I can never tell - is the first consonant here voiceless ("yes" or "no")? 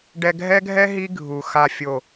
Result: no